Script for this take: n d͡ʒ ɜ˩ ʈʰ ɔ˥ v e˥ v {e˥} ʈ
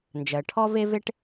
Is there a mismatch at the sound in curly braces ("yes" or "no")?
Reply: no